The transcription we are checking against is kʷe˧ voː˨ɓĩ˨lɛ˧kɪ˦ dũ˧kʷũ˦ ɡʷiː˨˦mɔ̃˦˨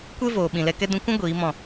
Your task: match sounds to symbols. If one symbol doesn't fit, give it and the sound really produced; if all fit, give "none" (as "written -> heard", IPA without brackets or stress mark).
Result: ɪ˦ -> ɛ˦